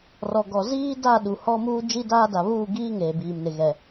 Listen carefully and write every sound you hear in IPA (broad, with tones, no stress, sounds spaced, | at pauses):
r ɔ˨ ɡ ɔ˨ z iː˦ d a˦˨ ɗ u˨ h ɔ˦ m uː˦ d͡ʒ i˦ d aː˦ d a˨ β uː˦˨ ɡ iː˦ ŋ eː˨ b iː˨ m n ɪ˨ ɣ ɛ˨